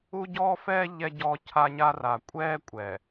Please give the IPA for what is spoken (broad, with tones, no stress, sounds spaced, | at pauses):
u˦ ɟ ɔː˦ f ɛː˦ ʎ ɛ˦ ɟ ɔː˦ cʰ a˦ ɲ a˦ r a˨ kʷʼ ɛː˦ kʷʼ ɛ˨